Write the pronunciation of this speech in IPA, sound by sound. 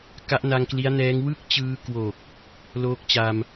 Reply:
k a˦˥ ʔ n a˧ ŋ k l i˦˥ a̯ n ɛː˦˥ ŋ w ɯ˥˩ k̚ t͡ɕ ɯː˧ k w o˨˩ k̚ | l oː˦˥ k̚ t͡ɕ a˧ m

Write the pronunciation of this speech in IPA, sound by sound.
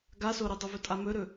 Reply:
ɡ a s o ɾ i dˤ ɵ v ɵ tʼ a m ɵ ɾ ɵ

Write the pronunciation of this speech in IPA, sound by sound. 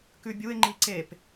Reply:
k ʉ bʲ u ɪ̯ ŋ͡ǃ i ǀ e p

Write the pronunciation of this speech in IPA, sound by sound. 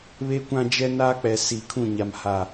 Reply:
β e˦ kʷ ã˦ d͡ʒ ɛ˦ n aː˦ k͡p ɛ˨ s iː˨˦ kʰ ũ˦˨ ɲ a˨ m h a˨

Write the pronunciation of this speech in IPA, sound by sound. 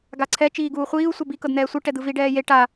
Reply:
ɡ a ǀʰ ɛ t͡ʃ iː ɡ uː χʷ iː u̯ sʷ ɛ b i k ɤ d n̪ ɛː sʷ ɯ ʈ ɛ d̪ ɯ v i ɖ ɛː j e ʈ a

